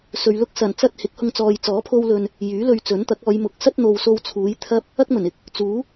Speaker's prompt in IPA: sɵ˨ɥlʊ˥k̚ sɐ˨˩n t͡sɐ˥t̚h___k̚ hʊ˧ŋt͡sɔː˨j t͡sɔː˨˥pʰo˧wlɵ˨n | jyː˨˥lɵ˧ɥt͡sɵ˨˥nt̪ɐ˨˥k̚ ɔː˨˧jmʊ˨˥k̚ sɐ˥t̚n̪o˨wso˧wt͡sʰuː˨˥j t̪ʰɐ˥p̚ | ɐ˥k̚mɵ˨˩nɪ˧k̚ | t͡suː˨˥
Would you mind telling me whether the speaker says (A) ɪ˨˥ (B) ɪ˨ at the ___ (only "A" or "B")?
A